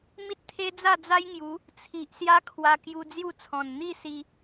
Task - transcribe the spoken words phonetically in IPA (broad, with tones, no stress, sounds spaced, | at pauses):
m i˦ t̚ t̪ʰ e˦ d͡z a˥˧ d͡z a˦ j ŋ j u˨˦ | t͡sʰ i˨ ʔ s j a˦ kʰ w a˧ k j u˧ d͡z j u˥˧ t͡sʰ ɔ̃˨˩ n n̪ i˥˧ s i˧